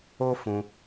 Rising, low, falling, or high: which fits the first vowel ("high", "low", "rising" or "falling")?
high